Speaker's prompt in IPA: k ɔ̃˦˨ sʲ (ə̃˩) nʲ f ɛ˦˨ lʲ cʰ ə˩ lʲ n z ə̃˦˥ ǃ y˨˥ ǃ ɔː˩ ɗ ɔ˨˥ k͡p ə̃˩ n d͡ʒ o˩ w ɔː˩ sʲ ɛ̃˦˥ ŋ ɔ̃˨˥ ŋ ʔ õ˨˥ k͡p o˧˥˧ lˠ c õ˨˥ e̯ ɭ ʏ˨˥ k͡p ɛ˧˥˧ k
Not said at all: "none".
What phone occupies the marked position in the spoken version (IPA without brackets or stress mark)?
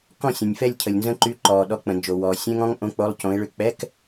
ə̃˩